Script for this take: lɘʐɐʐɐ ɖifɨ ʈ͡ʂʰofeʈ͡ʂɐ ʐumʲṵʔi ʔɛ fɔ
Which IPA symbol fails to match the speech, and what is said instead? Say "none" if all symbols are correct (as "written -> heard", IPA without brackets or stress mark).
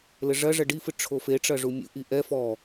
none